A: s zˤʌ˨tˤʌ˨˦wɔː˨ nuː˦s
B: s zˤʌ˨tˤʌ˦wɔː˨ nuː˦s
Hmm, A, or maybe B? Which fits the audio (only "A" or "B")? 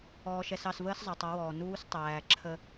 A